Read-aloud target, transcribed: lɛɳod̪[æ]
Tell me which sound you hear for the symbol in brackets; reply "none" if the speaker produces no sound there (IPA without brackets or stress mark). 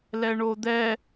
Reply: ɛ